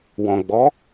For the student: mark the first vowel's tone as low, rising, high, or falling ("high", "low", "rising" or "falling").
low